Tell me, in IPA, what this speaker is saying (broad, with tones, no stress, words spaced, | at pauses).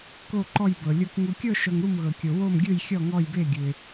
ko˥˧ǃɔ˥˧jbɤ˧lʲo˥˧k ŋu˧kʲɤ˥˧ʃɤ˧ŋ ɾu˥˧mɣɤ˧kʲo˧ wo˥˧mɡʲɯ˥˧j xʲɔ˥˧ŋɔ˥˧jbe˥˧ɡʲɯ˧ɪ̯